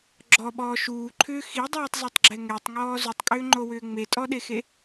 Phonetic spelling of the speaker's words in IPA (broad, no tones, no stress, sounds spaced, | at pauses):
ɡ͡ǁ ɔ ɓ ɔː ʃ uː ǃʰ ʏː x i dˤ uː tˤ z ɛ tˤ ɡ͡ǁ ɛ ŋ ɛ tˤ ŋ ɔː z u tˤ kʼ ʏː ŋ͡ǃ o w ʏː ŋ͡m e tʼ ɔ ɗ e x e